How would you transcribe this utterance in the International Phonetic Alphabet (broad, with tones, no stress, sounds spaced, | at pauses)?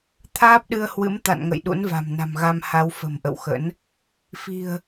t̪ʰ aː˦˥ p̚ ɗ ɨ˧ ə̯ h w ɨ̰˧˥ m t̪ a̰˧˨ n ŋ ə̰˧˨ j ɗ ṵ˧˥ n v a̤˨˩ m n a̤˨˩ m ɣ a˧ m h a˨˦ w f ə̤˨˩ m ʔ ə̰˧˨ w x ə̰˧˥ n | f i̤˨˩ ə̯